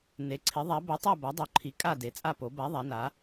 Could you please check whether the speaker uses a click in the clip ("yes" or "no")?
yes